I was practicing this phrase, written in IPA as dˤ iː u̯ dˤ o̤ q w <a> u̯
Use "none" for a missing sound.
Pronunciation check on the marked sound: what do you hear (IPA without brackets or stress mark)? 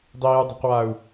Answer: a